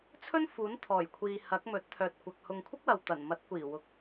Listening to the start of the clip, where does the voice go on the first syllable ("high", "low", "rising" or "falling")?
high